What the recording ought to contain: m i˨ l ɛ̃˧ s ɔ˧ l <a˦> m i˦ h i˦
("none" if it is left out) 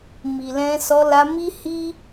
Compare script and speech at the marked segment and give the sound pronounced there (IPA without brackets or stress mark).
a˧